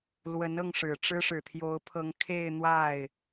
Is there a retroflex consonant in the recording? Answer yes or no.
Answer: yes